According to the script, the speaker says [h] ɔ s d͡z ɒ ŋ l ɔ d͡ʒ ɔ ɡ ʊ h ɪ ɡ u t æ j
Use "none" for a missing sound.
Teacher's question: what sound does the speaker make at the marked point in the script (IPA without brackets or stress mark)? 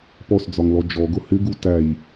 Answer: p